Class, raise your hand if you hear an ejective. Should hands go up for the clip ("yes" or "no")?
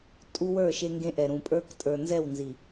yes